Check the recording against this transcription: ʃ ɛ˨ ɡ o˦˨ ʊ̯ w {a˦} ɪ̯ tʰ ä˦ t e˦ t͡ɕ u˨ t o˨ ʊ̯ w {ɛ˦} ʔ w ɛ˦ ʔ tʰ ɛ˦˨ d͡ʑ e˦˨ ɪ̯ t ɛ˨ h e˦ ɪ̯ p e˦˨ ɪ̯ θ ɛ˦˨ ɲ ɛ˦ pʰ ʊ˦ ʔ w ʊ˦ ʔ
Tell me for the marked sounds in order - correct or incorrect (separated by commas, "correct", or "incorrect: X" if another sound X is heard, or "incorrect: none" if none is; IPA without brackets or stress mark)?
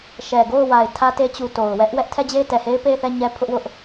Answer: incorrect: a˨, correct